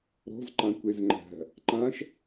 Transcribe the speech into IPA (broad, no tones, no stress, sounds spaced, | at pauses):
ɾ ɔ̤ z ǃ ã kʷ e z ŋ͡ǃ æ̤ | ǃ ã ʃ